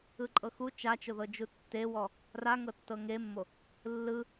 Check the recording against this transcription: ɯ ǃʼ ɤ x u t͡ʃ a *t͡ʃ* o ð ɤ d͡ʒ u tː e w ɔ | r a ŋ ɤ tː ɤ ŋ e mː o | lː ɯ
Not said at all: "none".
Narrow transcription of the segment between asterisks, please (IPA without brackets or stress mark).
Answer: t͡ʃ